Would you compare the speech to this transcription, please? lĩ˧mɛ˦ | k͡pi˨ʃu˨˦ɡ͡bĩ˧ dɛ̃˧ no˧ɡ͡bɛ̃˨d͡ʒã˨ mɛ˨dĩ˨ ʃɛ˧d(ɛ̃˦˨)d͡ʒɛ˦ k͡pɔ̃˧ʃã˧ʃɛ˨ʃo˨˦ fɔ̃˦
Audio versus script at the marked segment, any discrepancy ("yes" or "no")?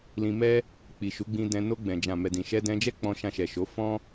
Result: yes